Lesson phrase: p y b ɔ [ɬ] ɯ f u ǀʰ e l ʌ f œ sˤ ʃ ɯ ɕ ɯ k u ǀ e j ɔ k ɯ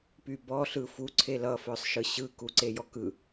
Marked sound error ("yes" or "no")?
no